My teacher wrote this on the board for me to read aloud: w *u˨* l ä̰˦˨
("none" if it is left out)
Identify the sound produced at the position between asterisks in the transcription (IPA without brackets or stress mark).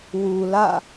u˨